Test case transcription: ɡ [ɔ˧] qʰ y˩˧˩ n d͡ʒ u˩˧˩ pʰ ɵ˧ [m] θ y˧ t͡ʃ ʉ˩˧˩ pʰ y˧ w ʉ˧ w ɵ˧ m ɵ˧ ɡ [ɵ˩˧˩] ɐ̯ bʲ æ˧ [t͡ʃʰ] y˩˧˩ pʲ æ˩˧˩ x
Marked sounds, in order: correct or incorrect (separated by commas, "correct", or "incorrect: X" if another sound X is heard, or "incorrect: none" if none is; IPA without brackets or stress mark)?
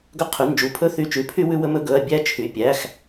incorrect: ɵ˧, incorrect: none, correct, correct